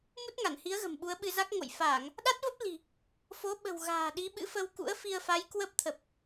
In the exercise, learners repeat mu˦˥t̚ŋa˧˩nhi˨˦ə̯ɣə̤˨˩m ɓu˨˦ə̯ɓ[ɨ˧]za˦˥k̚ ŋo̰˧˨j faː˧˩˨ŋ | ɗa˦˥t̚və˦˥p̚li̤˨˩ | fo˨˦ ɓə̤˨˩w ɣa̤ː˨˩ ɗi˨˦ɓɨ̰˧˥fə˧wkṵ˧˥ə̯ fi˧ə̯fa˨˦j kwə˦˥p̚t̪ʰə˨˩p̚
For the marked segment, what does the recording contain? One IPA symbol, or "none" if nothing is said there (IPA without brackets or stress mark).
ɨ˧